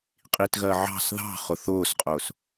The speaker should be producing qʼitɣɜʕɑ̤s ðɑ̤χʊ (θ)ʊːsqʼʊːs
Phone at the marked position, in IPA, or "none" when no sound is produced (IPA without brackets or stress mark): θ